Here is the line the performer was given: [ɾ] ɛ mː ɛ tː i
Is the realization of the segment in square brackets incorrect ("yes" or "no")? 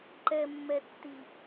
yes